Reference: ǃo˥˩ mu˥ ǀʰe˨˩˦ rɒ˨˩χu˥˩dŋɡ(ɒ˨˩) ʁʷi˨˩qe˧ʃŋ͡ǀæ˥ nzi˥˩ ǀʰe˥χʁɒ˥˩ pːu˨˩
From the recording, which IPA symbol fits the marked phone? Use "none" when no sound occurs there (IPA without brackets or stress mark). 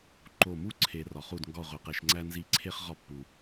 ɒ˥˩